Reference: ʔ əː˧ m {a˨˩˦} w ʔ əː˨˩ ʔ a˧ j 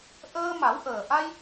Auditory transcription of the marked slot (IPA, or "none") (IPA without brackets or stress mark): a˨˩˦